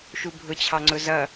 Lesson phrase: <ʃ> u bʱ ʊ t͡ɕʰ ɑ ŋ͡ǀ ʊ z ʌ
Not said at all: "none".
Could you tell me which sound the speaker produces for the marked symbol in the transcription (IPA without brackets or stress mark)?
ʃ